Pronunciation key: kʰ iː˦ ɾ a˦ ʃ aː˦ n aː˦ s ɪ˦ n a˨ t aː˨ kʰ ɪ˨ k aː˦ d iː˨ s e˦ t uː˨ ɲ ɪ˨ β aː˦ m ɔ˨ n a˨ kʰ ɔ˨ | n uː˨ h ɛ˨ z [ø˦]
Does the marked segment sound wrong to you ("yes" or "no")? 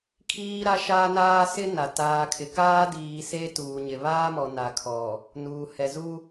yes